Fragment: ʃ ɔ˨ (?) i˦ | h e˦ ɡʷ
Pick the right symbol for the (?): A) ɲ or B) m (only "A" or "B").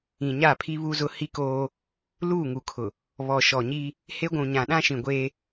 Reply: A